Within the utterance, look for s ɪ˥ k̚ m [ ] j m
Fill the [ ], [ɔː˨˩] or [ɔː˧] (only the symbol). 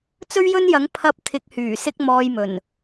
ɔː˧